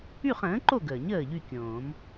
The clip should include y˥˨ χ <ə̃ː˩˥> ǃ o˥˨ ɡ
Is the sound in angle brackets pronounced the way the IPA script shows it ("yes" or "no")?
yes